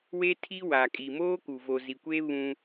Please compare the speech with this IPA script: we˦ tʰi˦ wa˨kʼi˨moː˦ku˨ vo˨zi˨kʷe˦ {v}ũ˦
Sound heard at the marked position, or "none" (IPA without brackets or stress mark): β